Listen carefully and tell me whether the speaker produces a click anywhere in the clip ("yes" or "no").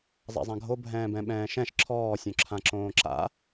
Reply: yes